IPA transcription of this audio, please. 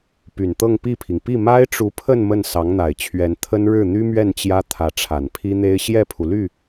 p y˨˩ n t̪ ɤ˥˧ ŋ p i˥˩ pʰ i˩ ŋ p i˥˩ m a˥ ɪ̯ ʈ͡ʂ u˧˥ pʰ ə˥˧ n m ə˥˩ n s ɑ˧˥ ŋ n̪ a˨˩ ɪ̯ t͡ɕʰ ɥ ɛ˧˥ n t̪ʰ ə˥ n ɻ ɻ̩˥˩ n̪ y˥ m ɥ ɛ˥˩ n t͡ɕ j ä˥ t̪ʰ ä˧˥ ʈ͡ʂʰ a˨˩ n pʰ i˥ n̪ e˥ ɪ̯ ɕ j ɛ˥˩ pʰ u˩ l y˥˩

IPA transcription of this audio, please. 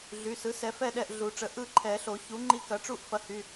ɮ y˩˧˩ s ɯ˩˥ s ɛ˨˩˦ f ɛ˥˩ ɗ ɛ˥˩ ʔ ɮ u˨˩˦ ʈ͡ʂ ə˩˥ ʔ ɯ˥˩ ǃʰ ɛ˨˩˦ ɬ o˨˩˦ ç u˩˥ ŋ͡ǃ i˧ k ɐ˩˥ ʈ͡ʂ u˥˩ ʔ f ɐ˧ h y˩˧˩

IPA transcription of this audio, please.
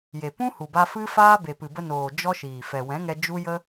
j e˨ p ũ˦ h u˨ b a˧ f ɨ˦ f aː˦ b e˨ p ɨ˨ b ə˧ n oː˨ d͡ʒ ɔ˦ ʃ iː˨ f ɛ˨ w ɛ̃˨˦ ŋ ɛ˧ d͡ʒ u˦ j ə˦

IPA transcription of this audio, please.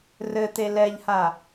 r ɘ t̪ e l ɛ ʎ h a

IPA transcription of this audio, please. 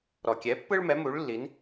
ɾ ɔ˩ kʲ ɛ˩˥ pː ɯ˥ ɭ m ɛ˩˥ m u˩˥ ɭ lː i˩˥ n

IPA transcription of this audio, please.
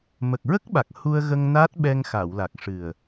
m ə˨˩ k̚ ɹ ə˦˥ k̚ ɓ a˨˩ k̚ h u˧ ə̯ ɣ ə˧ ŋ n a˦˥ t̚ ɓ ɛ˧ ŋ x a˨˩˨ w l a˨˩ k̚ ʂ ɨ˨˩ ə̯

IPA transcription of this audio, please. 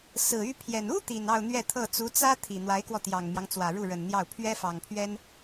s ɹ̩˨˩ y˥ pʰ j ɛ˨˩ n u˥ t̪ i˨˩ n ɑ˥˧ ʊ̯ n̪ ɥ ɛ˥˧ t̪ʰ ɤ˥˩ t͡s u˧˥ t͡s ä˥ t̪ʰ i˨˩ n̪ w a˧˥ ɪ̯ k w ɔ˧ t̪ j ɑ˨˩ ŋ m j ɑ˦ ŋ t͡s w ä˨˩ ɻ u˥˩ ɻ ə˨˩ n n̪ j ɑ˥˩ ʊ̯ pʰ ɥ ɛ˥ f ɑ˨˩ ŋ pʰ ɥ ɛ˥ n

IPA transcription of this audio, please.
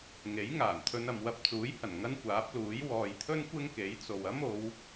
ŋ e˨˥ j ŋ aː˨˩ n t̪ʰ ɵ˧ n ɐ˨ m w ɐ˧ p̚ t͡s uː˨˥ j h ɐ˨˩ n ŋ ɐ˥ n kʷ aː˨˥ p̚ l uː˨˥ j w ɔː˨ j t̪ʰ ɵ˥ n kʷ ɪ˥ ŋ k e˨˥ j t͡s o˨ w ɐ˥ m o˨˧ w

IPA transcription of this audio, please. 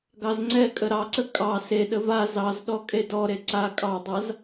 ɡ ɑ z ŋ͡ǀ ɛ kʼ ə ɾ ɑ ǀ ə kʼ ɑ s e ɗ ə v a z ɑ z ɗ ɔ kʼ e d ɔ ɾ e ǀ a kʼ ɑ dˤ a z

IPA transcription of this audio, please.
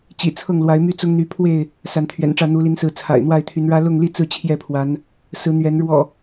t͡ɕ ḭ˨˩ t͡sʰ ɤ˥˨ ŋ l w a˨˦ ɪ̯ m y˦ t͡s ʊ˦ ŋ n̪ y˨˦ pʰ w e˥˨ ɪ̯ | s a˨˦ n t̪ʰ ɥ ɛ̰˨˩ n ʈ͡ʂ ä˥˨ n̪ u˨˦ l i˨˦ n s ɹ̩˨˦ t͡sʰ a̰˨˩ ɪ̯ n̪ w a˥˨ ɪ̯ t̪ʰ y˨˦ n ɻ ä˦ l ʊ˥˨ ŋ l i˥˨ t͡s ɹ̩˥˨ t͡ɕʰ j ɛ˥˨ pʰ w a˨˦ n | s ɹ̩˨˦ n̪ ɥ ɛ˨˦ n ɻ w ɔ̰˨˩

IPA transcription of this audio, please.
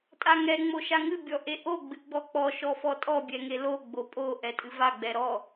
tʼ a ŋ ɛ ŋ͡m o ʃ a ŋ ɨ bʲ ɔ ʔ e ʔ o ɡ͡b ɨ ɡ͡b ɔ k͡p ɔ ʃ ɔ f ɔ tʼ ɔ bʲ ɛ ŋ e l o ɡ͡b o pʼ o ʔ ɛ tʼ ɨ v a ɡ͡b ɛ ɾ ɔ

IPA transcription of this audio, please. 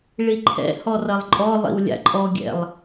ɭ i ǃʰ ɛ̰ h ɔ r ɐ lˠ ǃʼ ɔ lˠ ḭ w lʲ a̰ ǃʼ ɔ ɡʲ ɛ̰ lˠ

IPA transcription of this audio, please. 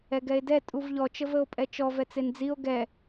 ɛ ɡ ɛ e̯ d ɛ tʼ u v ʎ ɔ t͡ʃ ə v ə o̯ pʼ ɛ t͡ʃ ɔ v ɛ t͡s e n d͡z i o̯ ɡ ɛ

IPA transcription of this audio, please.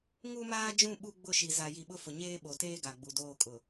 ŋ u˦ m aː˦ d͡ʒ ũ˦˨ ɓ u˦ ɡ͡b ʊ˦˨ ʃ i˨ z a˨ j i˨ ɓ ʊ˦ f ʊ˨ ɲ eː˦ ɓ o˨ t eː˦ ɡ a˨ ɡ͡b u˨ d oː˦˨ kʼ ʊ˨

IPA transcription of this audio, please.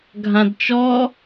ɡʱ ã d t͡ʃ ɔ

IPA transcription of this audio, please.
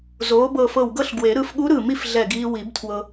z oː˩˥ b ɤ˧˩ f ɤ˧˩ w ɡ ɤ˥˨ ɬ ɡ w e˨˩˦ ɾ ɯ˩˥ f ɠ u˧˥ ɾ ɯ˧˩ m i˥˨ f ɮ ɛ˧˩ ɡ iː˧ w i˨˩˦ b tʰ w ɤ˧

